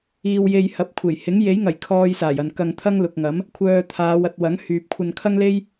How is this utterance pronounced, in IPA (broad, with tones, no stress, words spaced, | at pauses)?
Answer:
iː˧wje˧jhɐ˨˥p̚kʷʰe˨˩j hɪ˨˥ŋje˨˥jŋɐ˨˩j kʰɔː˧j saː˨˩jɐ˨n kɐ˧ŋt̪ʰɐ˥ŋ lʊ˨k̚ŋɐ˨˥m | kʷʰœː˧t̪ʰaː˨˧w ɐ˧t̚wɐ˨˥ŋ hyː˨p̚kʷʰɐ˧nkʰɐ˥ŋle˥j